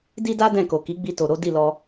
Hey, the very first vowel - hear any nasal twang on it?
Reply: no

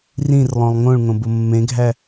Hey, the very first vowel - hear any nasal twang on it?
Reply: yes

